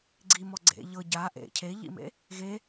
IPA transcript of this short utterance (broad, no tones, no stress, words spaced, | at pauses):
ɡ͡ǀimɔ ɡ͡ǀḛ ʎɤ ɟa ʔḛ cʰeʎḭmḛ | ɣe